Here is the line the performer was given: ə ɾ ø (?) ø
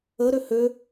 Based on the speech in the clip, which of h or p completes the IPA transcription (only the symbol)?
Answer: h